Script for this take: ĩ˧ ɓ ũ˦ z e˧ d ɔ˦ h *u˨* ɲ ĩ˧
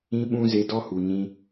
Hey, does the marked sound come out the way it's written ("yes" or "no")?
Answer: yes